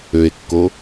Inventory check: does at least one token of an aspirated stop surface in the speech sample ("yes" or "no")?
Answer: no